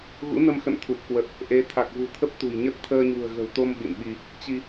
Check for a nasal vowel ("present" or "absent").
absent